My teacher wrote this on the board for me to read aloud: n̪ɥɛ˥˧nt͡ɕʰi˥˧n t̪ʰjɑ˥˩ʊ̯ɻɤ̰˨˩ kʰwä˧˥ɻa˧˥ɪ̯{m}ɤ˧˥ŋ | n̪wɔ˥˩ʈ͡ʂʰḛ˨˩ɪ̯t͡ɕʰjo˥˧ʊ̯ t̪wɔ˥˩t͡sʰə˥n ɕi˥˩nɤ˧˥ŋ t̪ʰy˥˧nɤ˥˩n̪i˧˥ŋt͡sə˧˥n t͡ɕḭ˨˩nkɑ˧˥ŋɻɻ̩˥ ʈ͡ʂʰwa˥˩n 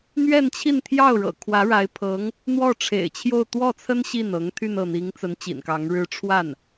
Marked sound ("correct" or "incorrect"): incorrect